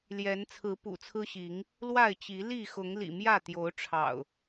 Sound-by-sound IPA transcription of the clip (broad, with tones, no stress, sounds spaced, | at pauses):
l j ɛ˨˦ n t͡sʰ ɹ̩˨˦ p ṵ˨˩ t͡sʰ ɹ̩˦ ɕ i˨˦ ŋ | l w a˥˨ ɪ̯ t͡ɕ i˨˦ l i˥˨ x ʊ˨˦ ŋ l ḭ˨˩ m j ä˥˨ t̪ j o˨˦ ʊ̯ ʈ͡ʂʰ ɑ̰˨˩ ʊ̯